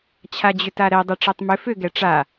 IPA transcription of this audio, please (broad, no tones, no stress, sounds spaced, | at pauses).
t͡ɕʰ a d͡ʑ ʏ t a ɾ ɛ dˤ ɛ ʈ͡ʂ æ tˤ m ʏ f ʏ ɡ ɛ ʈ͡ʂ a